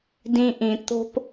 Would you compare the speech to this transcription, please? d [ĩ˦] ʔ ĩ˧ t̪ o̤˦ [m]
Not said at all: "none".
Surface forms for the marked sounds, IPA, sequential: ĩ˦, p

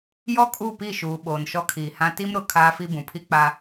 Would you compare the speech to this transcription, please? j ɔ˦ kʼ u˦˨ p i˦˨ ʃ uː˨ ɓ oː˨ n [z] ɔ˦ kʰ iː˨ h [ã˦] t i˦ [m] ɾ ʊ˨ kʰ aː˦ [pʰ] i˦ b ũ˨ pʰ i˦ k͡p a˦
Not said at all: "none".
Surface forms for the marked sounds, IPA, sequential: ʃ, ã˦, m, f

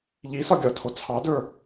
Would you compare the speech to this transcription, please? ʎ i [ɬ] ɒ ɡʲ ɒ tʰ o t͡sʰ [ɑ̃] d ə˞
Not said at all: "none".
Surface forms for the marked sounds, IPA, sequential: s, ɑ

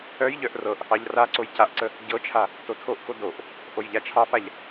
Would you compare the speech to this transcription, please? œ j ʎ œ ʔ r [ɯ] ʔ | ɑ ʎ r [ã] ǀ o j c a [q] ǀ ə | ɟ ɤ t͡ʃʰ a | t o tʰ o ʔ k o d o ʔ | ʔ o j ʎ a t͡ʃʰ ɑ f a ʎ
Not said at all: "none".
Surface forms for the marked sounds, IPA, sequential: ɤ, a, ʔ

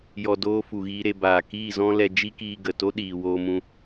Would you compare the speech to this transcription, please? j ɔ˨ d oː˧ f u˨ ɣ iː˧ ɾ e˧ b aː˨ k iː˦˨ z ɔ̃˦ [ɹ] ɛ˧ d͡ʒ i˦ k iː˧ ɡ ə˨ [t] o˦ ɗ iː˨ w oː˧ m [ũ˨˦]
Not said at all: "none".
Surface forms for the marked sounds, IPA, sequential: l, t, ũ˧

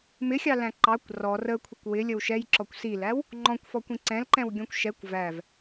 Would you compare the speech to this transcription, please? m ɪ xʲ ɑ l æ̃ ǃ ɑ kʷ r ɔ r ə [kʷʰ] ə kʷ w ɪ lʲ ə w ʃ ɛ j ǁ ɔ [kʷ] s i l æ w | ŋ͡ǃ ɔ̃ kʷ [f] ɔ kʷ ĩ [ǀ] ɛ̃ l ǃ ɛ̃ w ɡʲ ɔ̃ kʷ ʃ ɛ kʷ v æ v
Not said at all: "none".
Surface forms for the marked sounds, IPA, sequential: kʷʰ, kʷ, f, ǀ

